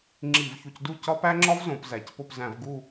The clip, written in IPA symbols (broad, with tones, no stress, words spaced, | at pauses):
ŋ͡ǁi˧˩˧vçu˨˩cdu˦˨ cɒ˦pæ˦ŋ͡ǁɒ˦v zõ˩˧pzæ˨˩c po˦˨pzæ̃˧˩˧v ɡu˦˨